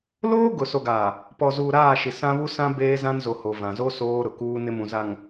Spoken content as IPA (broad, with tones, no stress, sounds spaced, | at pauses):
l oː˦ ɡ ʊ˨ s o˨ ɡ aː˨ | p ɔ˨ z uː˨ ɾ aː˦˨ ʃ i˨ s ã˦ β u˦ s ã˦ b eː˦ z ã˦ n z o˨ h o˨ v ã˨ z o˦ s oː˦ ɾ ʊ˨ k uː˦ n ɪ˦ m ũ˨ z a˨ ŋ